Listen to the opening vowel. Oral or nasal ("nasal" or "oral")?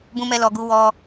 nasal